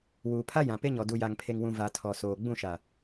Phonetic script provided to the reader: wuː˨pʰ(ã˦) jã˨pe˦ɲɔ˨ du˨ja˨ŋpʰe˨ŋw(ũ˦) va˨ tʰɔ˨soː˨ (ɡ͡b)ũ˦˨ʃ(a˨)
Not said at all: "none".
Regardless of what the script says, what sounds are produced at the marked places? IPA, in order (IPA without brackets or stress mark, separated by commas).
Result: a˦, ũ˨, ɡ͡b, a˨